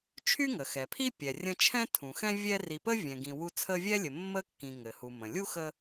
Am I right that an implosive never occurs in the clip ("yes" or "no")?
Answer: yes